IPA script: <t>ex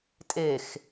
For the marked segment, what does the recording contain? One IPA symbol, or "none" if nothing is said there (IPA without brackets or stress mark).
tʼ